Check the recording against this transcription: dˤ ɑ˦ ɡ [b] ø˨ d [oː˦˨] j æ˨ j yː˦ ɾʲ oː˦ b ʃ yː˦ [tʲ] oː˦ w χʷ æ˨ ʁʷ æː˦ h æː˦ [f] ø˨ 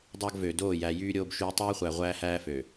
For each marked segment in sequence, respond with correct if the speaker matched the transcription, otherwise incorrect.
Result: incorrect, correct, incorrect, correct

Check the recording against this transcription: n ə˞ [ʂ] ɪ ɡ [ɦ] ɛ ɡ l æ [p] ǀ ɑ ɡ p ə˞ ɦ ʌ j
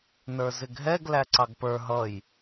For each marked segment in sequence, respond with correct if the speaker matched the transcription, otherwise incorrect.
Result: incorrect, correct, incorrect

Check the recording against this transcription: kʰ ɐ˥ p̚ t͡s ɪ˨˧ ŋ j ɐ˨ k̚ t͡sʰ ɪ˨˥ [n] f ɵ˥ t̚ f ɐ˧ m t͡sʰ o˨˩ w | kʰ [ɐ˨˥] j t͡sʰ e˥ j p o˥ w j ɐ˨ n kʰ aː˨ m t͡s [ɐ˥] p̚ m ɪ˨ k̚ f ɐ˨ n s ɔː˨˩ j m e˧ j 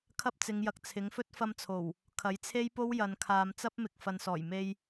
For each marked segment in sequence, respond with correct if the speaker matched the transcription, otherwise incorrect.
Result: incorrect, correct, correct

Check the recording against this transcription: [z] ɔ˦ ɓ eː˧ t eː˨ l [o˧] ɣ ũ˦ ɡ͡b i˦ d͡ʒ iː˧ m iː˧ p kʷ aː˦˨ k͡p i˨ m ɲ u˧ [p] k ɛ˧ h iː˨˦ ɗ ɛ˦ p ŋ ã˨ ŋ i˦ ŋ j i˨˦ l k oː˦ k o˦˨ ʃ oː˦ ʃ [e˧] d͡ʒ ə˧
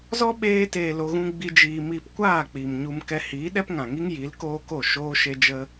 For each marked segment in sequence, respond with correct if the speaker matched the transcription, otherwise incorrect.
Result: correct, correct, incorrect, correct

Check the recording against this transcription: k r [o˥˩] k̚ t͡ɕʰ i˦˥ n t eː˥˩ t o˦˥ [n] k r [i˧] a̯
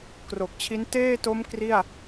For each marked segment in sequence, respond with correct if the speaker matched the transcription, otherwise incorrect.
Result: incorrect, incorrect, incorrect

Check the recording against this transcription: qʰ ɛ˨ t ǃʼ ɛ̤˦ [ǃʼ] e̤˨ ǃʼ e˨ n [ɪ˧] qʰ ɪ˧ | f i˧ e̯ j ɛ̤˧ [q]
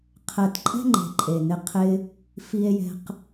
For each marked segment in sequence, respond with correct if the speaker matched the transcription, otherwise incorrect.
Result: incorrect, correct, correct

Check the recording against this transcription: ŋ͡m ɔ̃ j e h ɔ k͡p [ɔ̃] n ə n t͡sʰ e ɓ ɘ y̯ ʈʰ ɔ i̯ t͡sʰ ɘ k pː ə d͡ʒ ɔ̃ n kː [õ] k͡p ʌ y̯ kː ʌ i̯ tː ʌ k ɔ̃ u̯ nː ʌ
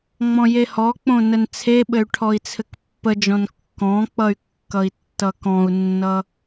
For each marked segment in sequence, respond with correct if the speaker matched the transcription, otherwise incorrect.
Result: incorrect, incorrect

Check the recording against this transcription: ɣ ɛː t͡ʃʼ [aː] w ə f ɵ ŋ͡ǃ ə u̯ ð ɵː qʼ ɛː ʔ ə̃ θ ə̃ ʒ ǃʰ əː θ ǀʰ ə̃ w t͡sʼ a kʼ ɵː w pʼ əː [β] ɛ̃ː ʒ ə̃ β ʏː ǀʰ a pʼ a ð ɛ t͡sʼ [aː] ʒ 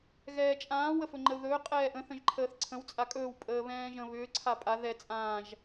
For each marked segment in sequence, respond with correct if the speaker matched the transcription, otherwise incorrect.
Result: incorrect, correct, incorrect

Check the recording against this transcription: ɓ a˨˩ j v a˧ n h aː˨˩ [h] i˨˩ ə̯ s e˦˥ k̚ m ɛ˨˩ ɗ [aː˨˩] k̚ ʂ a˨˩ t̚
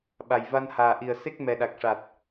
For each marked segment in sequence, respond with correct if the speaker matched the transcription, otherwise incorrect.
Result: incorrect, incorrect

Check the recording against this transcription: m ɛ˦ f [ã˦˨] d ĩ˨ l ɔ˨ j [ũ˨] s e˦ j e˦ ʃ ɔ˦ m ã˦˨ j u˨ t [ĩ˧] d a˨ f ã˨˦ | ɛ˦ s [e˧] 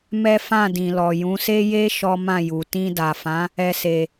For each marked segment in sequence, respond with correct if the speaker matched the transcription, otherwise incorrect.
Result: correct, incorrect, correct, correct

